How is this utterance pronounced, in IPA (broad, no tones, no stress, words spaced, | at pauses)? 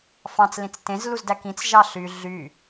fɑ̃t͡slĩt͡s tẽzluzdæ kĩt͡sʒɑ ɬy ɮy